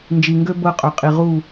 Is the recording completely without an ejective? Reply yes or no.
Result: no